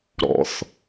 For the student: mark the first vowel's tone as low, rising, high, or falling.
low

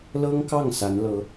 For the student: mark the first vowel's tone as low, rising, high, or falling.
high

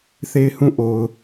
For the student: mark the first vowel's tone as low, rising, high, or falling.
falling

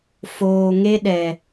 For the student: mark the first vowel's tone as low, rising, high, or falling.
low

